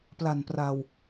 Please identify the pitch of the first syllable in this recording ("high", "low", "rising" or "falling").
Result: low